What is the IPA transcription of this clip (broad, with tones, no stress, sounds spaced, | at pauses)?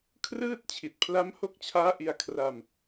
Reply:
kʰ r ɯː˥˩ t̚ t͡ɕʰ i˨˩ t̚ pʰ l a˦˥ m h o˦˥ k̚ t͡ɕʰ aː˦˥ ʔ i˧ a̯ kʰ r a˧ m